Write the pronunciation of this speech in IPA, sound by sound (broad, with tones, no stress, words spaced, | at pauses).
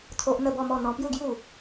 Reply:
t̪ʰo˦ʔ n̪ə˥˧bɔ˥˧mɔ˥˧ n̪ɔ̃˧pju˥˧ɡju˥˧